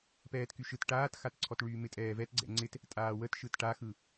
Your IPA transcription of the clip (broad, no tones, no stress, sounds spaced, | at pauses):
p ɛː t k y ʃ ɯ t ʈ aː t x a t ǀʰ ɔ t ɭ yː m ɪ tʼ ɛː v ɛ t ɡ͡ǀ ɛ̰ ŋ͡ǀ ɪ t | tʼ aː w ə t ʃ ɯ t ʈ a x ɯ